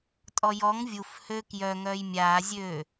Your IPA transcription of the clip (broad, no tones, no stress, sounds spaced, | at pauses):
tʼ ɔ j ɔ ŋ vʲ u f h ø k j œ ŋ œː j mʲ aː zʲ øː